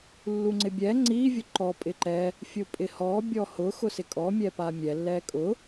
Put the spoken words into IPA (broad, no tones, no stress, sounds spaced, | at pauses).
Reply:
lː u ŋ͡ǀ ɪ bʲ ɛ ŋ͡ǀ i vʲ ʊ ǃ ɔ pʼ ɪ ǃ ɛ | fʲ ʊ pʼ ɪ h ɔ bʲ ɔ h ʊ x ʊ s ɪ kʼ ɔ mʲ ɛ p a mʲ ɛ lː ɛ kʼ ʊ